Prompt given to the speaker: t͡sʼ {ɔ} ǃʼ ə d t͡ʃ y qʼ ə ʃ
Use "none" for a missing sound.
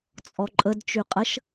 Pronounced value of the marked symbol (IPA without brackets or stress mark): ɔ